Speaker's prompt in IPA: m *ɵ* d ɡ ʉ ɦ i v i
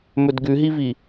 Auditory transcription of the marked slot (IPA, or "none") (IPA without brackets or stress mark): ɵ